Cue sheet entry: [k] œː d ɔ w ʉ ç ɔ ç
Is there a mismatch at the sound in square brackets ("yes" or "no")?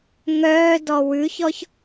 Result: yes